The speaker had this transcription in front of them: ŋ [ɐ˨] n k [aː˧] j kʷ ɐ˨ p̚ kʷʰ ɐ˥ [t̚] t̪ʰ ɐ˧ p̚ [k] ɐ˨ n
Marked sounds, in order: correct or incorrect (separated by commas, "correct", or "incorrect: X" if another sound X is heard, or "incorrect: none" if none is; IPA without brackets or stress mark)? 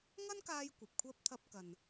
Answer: incorrect: ɐ˥, correct, incorrect: p̚, correct